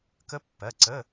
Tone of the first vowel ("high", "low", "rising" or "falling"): rising